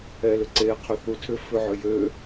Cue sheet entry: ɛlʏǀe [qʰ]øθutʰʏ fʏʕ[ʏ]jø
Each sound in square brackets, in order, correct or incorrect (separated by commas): correct, correct